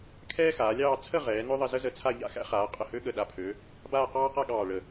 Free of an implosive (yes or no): no